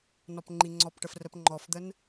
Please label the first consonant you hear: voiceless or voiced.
voiced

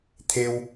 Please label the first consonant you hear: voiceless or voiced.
voiceless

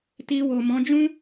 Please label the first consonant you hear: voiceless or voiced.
voiceless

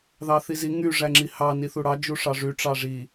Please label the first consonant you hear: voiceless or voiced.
voiced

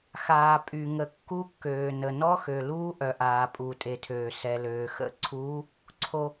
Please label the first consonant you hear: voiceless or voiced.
voiceless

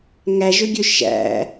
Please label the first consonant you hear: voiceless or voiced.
voiced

